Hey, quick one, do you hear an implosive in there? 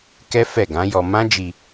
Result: no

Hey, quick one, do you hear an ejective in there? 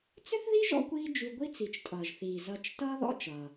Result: yes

